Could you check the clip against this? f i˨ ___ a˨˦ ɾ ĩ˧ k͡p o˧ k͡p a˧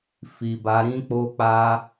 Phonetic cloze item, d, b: b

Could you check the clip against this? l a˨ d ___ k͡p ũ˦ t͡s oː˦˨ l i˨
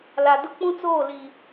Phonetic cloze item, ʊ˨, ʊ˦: ʊ˦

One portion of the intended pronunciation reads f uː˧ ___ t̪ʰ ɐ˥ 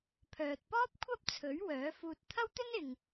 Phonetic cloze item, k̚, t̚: t̚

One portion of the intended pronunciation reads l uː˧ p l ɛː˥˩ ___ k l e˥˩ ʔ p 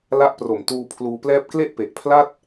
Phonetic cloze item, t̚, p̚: p̚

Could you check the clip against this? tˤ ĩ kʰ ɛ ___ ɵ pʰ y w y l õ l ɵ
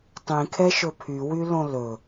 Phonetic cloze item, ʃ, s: ʃ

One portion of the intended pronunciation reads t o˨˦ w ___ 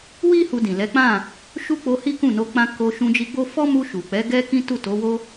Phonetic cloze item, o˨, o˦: o˦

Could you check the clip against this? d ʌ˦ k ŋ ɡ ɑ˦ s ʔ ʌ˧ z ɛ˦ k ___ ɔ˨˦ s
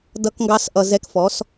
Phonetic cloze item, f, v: f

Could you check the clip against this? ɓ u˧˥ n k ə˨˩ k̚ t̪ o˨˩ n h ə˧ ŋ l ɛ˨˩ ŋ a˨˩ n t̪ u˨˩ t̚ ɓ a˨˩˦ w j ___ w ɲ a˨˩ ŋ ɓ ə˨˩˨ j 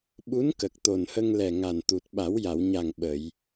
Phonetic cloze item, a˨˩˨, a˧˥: a˨˩˨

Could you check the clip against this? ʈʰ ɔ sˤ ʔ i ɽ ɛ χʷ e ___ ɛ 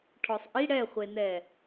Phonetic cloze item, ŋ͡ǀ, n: n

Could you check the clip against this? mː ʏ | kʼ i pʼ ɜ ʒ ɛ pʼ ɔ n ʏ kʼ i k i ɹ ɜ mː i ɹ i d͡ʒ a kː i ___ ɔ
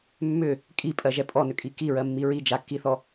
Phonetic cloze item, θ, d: θ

